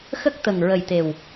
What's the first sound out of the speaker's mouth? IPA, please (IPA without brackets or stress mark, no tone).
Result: x